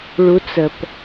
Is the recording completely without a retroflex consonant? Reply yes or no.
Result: no